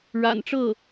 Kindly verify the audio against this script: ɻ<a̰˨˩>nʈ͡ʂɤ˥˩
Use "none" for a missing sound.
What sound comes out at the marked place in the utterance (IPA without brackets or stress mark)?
a̰˨˩